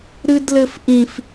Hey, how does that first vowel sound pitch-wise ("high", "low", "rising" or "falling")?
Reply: high